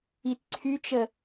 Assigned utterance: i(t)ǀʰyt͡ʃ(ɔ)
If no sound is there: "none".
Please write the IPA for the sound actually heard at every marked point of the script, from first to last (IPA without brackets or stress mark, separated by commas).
t, ə